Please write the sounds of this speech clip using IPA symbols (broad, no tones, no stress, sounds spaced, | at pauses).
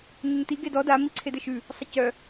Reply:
ɲ ɘ ɲ t i ɡ e d ɔ d a m i ǀʰ e d ɘ ʃ ʉ | sˤ ɘ c œ